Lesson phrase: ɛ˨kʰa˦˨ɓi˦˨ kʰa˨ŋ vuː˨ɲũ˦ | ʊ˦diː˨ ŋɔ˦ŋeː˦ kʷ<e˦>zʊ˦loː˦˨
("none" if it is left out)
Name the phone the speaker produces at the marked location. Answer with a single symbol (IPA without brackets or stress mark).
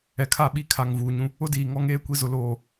i˦